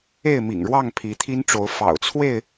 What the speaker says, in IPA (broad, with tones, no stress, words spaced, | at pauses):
e˥˨ɪ̯mḭ˨˩ŋɻwɑ˥˨ŋ pʰi˨˦t̪ʰi˦nʈ͡ʂo˨˦ʊ̯ fɑ̰˨˩ʊ̯t͡sʰwe˥˨ɪ̯